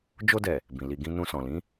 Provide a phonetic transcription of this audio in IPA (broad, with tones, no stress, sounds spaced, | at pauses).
d͡ʒ o˧ d ɛ˨ | b ĩ˨ l i˨ ɡ ĩ˧ n ũ˧ s ɔ̃˨ l ĩ˨˦